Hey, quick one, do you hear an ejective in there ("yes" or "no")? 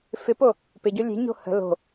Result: no